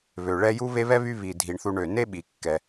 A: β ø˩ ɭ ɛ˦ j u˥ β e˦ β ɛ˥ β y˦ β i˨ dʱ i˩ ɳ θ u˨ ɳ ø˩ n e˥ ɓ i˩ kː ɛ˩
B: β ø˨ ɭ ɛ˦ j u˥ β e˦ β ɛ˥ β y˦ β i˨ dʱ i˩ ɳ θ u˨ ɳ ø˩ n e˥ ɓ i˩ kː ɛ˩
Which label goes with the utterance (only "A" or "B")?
A